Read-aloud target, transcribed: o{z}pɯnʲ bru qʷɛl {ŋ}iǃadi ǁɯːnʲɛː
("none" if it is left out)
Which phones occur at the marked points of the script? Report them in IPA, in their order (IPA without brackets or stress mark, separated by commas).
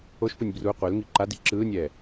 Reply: ʃ, ŋ